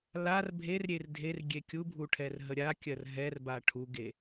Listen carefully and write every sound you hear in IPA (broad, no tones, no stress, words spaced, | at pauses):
lar bʱerɾʲer dʱer ɡʲekʲubʱu ʈʰɛrɦəɾʲakʲɜr ɦɛrba ʈʰuɡe